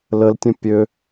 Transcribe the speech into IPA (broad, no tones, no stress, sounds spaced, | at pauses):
l ə l tʲ ə̃ pʲ ø